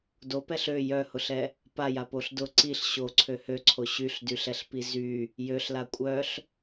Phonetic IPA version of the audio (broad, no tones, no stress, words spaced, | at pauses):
dopɛɬ ø jœhʊɬɛ | pajapoɬ dʊ ǀiɬ ɕoǀʰø høǀʰo ɕyɬdyɬɛɬpi zy | jøɬla kʷʼœɬ